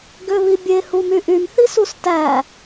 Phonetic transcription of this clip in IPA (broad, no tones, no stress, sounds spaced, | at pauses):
ɡ ø β i bʲ e h u m y ʔ y m θ i s u s t æ